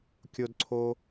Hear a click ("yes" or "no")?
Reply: yes